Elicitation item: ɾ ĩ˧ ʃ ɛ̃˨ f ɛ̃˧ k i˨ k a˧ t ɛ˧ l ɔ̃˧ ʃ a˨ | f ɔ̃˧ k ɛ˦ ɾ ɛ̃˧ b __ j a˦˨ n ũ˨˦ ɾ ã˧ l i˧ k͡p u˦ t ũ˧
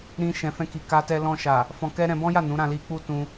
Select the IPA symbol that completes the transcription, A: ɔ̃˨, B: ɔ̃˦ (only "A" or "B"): B